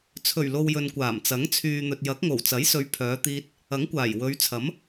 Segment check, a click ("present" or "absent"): absent